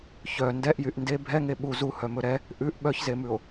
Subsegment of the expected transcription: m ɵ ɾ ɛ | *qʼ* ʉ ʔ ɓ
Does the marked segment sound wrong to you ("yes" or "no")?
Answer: yes